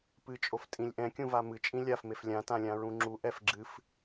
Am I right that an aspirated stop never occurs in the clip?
yes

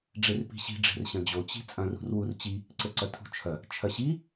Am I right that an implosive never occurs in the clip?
yes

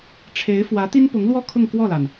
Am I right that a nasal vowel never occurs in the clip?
yes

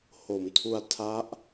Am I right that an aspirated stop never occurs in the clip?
no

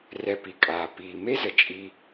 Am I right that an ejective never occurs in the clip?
no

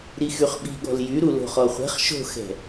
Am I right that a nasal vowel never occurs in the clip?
yes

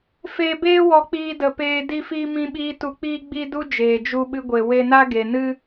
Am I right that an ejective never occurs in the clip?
yes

